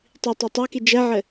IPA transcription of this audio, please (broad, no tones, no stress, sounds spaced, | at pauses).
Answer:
tˤ i tˤ a tˤ a k i d͡ʒ ɛ ʕ ɘ